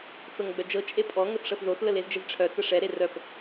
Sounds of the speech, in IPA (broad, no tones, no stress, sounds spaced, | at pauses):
t͡s ɤ ŋ ɡ͡b œ d͡ʒ ɤ t͡ʃʼ e pʼ ɔ ŋ ə θ ʂ ɤ θ ð o θ l ə l e z d͡ʒ ɛ z ʈ͡ʂʰ œ t͡s ə ʂ ɛ ɾ e r œ p